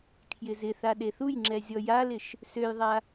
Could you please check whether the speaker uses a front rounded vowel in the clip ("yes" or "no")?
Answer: yes